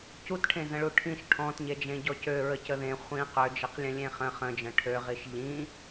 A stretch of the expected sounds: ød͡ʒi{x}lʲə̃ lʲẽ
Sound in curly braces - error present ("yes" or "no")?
yes